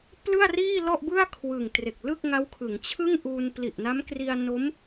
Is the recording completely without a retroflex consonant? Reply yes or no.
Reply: yes